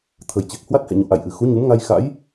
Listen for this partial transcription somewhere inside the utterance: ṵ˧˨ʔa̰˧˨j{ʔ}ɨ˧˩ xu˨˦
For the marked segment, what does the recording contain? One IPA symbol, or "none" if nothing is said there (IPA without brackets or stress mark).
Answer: ʔ